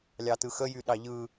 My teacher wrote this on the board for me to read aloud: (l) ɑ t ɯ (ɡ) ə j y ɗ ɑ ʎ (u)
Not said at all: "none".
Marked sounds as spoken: lʲ, x, ɯ

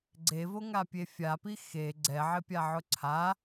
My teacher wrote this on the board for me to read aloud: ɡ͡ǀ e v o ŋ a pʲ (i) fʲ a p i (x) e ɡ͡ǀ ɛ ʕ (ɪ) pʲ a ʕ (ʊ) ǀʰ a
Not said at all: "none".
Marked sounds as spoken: e, x, ɪ, ʊ

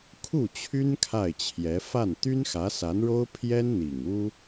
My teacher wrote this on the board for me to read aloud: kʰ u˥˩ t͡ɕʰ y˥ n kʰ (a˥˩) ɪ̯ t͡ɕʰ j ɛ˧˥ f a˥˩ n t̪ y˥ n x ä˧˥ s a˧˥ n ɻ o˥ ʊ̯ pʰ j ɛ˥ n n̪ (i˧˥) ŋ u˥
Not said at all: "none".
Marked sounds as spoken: a˥˩, i˨˩

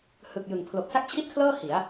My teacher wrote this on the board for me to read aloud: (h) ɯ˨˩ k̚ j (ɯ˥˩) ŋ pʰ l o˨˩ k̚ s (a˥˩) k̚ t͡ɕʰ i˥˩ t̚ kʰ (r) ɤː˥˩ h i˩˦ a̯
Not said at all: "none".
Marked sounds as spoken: h, ɯ˨˩, a˥˩, l

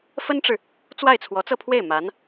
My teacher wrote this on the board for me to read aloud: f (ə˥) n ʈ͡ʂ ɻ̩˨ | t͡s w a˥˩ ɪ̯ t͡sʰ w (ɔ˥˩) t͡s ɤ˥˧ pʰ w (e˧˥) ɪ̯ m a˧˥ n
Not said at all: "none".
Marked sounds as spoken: ə˥, ɔ˧˥, e˥˩

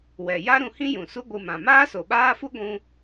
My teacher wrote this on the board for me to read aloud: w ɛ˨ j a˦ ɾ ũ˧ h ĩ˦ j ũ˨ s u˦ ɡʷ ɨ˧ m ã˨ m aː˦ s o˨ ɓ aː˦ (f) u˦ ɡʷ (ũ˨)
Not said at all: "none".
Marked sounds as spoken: f, ũ˦

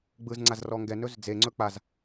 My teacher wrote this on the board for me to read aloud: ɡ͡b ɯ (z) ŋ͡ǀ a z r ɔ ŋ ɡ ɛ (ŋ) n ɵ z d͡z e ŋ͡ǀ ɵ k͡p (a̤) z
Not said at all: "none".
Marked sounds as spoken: z, none, a

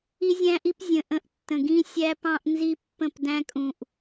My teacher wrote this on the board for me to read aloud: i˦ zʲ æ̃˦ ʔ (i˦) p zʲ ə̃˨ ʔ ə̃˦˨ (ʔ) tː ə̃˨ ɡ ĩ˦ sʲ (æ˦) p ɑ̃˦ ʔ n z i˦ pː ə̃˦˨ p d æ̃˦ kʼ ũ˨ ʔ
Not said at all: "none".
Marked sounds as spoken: i˦, ʔ, æ˦

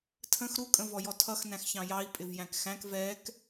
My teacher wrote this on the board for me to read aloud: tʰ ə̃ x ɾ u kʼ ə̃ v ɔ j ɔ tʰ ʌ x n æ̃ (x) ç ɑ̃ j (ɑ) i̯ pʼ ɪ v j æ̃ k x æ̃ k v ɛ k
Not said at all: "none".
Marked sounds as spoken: x, ɑ

